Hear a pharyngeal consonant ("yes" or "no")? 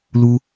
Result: no